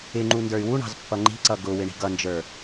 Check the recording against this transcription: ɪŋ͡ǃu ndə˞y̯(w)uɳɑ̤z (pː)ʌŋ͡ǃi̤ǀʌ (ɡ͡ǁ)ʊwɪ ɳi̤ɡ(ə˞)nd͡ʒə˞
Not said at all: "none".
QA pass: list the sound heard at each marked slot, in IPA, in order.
w, pː, ɡ, ʌ

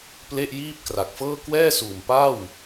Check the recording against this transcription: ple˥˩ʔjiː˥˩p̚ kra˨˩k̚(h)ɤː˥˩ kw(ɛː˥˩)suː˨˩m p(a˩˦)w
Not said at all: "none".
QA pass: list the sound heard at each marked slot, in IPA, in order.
f, ɛː˥˩, a˥˩

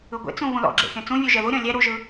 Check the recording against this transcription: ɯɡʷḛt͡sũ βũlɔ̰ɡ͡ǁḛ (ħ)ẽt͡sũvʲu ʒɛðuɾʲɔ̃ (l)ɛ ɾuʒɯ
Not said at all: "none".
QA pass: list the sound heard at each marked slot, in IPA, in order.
x, lʲ

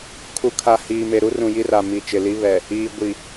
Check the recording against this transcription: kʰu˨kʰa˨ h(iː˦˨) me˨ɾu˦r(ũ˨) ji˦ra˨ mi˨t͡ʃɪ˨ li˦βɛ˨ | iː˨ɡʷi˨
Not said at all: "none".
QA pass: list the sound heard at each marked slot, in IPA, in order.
iː˨, ũ˨

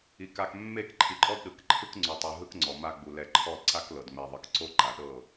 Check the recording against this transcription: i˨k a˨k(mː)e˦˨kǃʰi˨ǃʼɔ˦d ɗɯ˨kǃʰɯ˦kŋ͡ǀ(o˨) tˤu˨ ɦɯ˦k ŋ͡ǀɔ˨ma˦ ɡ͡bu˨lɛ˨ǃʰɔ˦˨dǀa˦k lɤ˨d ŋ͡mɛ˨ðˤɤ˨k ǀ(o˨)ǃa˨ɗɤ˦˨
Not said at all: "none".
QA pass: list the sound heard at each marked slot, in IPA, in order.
mː, u˨, o˦

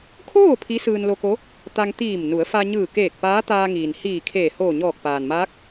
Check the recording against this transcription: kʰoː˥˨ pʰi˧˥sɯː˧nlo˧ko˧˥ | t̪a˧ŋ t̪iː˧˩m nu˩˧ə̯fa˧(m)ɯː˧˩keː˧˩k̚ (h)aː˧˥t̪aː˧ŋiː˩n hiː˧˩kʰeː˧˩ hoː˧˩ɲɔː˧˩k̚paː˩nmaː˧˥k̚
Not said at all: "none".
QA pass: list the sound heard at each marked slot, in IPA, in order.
ɲ, p

